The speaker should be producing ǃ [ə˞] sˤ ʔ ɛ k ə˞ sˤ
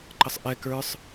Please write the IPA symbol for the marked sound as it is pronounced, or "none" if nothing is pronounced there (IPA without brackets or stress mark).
ə